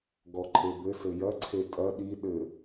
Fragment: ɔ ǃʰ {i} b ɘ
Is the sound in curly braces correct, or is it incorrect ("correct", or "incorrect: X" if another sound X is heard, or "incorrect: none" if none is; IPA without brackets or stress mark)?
incorrect: e